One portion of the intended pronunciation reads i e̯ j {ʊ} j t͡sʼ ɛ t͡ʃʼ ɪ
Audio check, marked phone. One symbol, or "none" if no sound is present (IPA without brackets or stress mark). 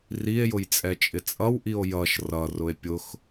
ʊ